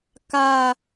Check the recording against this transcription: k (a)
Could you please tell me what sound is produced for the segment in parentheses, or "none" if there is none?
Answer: a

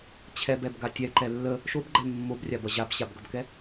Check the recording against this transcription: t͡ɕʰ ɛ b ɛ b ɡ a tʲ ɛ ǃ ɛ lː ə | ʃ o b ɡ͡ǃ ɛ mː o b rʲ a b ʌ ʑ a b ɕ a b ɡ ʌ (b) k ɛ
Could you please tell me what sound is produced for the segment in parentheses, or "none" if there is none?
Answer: b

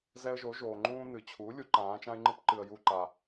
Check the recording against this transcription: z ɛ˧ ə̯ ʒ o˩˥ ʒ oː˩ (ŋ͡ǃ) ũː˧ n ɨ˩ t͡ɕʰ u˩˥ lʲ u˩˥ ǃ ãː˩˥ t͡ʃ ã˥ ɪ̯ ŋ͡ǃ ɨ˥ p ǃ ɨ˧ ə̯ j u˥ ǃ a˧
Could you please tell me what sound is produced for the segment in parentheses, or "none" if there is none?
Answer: ŋ͡ǃ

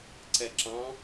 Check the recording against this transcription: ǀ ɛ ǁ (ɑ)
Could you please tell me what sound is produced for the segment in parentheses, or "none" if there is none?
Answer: ɑ̃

